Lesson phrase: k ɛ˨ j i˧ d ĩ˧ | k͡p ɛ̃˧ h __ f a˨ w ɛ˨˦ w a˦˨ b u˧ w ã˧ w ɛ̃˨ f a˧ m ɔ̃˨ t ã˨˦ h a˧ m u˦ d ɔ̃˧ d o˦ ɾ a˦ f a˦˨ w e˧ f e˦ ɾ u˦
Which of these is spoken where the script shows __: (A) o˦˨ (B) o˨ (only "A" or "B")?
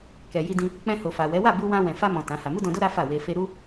B